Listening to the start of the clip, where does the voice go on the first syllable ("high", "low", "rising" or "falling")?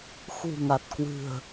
low